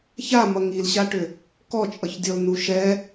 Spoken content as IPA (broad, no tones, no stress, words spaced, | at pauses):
ça mʌŋilɕaʈʏ | kɔt͡ʃʼʌçdʲɔl nuʃɛ